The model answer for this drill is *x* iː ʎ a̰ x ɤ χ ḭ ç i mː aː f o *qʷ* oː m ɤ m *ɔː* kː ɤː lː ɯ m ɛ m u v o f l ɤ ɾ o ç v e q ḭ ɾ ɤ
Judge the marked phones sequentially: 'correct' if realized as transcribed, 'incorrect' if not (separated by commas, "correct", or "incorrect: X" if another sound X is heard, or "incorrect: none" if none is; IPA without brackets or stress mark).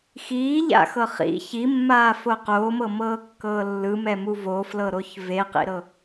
correct, incorrect: q, incorrect: ɤː